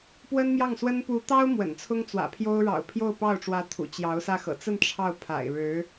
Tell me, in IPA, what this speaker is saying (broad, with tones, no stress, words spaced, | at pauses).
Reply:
pwə˥nmjɑ˥˩ŋswə˥n pu˧˥t̪ɑ˥ʊ̯ mwə̰˨˩nt͡sʰʊ˥ŋt͡swä̰˨˩pʰjo˥ʊ̯ ɻɑ̰˨˩ʊ̯pʰjo˥˧ʊ̯pɑ˥˩ʊ̯ʈ͡ʂwä˧˥ t̪ʰṵ˨˩t͡ɕjɑ˧˥ʊ̯sä˥˩ xɤ̰˨˩t͡sə˥˧n ʈ͡ʂʰɑ˥˩ʊ̯pʰa̰˨˩ɪ̯ɻɻ̩˧˥